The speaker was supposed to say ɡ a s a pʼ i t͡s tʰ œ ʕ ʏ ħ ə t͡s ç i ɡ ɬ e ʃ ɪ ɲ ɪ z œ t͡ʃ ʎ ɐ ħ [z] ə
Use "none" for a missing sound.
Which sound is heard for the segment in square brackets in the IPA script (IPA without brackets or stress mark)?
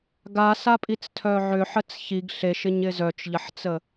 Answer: t͡s